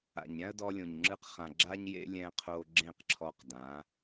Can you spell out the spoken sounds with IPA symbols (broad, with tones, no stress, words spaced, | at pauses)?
a̰˨ɲɾʲã˦ə̯dɔ˧lʲõ˨ɲ ŋ͡ǁɯ˧qχã˨ ɡ͡ǁa˧ɲjḛ˧ lʲɛ̃˧qʰo˧ ɡ͡ǁẽ˦˨qǁʰɔ˧qdã˨˦